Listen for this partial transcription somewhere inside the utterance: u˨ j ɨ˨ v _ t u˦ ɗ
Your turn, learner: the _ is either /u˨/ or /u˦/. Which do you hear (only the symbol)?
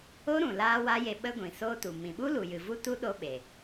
u˦